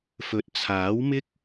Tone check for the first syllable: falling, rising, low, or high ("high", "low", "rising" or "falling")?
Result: low